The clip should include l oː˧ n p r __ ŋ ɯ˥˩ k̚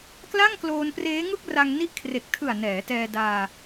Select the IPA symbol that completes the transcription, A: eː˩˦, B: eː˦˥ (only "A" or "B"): B